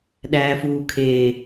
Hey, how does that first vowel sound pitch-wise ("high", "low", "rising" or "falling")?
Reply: low